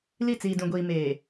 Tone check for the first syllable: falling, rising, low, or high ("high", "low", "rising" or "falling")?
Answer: falling